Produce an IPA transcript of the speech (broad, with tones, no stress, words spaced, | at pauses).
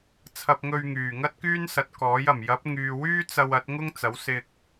t͡sʰɐ˧p̚ŋɵ˧ɥ ŋyː˨˩ŋɐ˥t̚kyː˥n sɐ˨˥t̚kɔː˨˥j ɐ˨˩mjɐ˨˥p̚ ŋyː˨wyː˥ t͡sɐ˧wɐ˨˥t̚ ŋʊ˥ŋ t͡sɐ˨˥wsɪ˧k̚